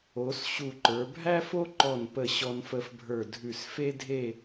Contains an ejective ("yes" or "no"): no